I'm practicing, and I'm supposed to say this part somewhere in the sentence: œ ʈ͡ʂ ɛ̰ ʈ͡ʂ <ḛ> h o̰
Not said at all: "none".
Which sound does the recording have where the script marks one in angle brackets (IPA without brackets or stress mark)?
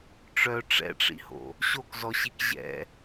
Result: ḭ